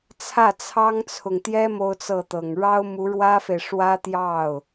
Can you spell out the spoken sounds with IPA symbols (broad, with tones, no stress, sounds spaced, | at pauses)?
t͡sʰ ä˥˩ t͡sʰ ɑ˥ ŋ t͡sʰ ʊ˨ ŋ t̪ j ɛ˥ m o˥ ʊ̯ t͡s ɤ˥˩ t̪ ɤ˨˩ ŋ ɻ ɑ˥ ʊ̯ m u˧˥ ɻ w ä˥ f e˨ ɪ̯ ʂ w ä˥ t̪ j ɑ˥˩ ʊ̯